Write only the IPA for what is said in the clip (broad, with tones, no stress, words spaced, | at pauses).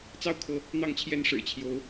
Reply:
t͡sɑ˥˩ʊ̯kʰɤ˧˥ | n̪ɑ˥˩ŋt͡ɕʰjɛ˥n ʂɻ̩˨˩t͡ɕʰjo˧˥ʊ̯